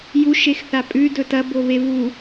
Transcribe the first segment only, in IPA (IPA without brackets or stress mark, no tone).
j